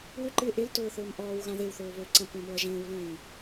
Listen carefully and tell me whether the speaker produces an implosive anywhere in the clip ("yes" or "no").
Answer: no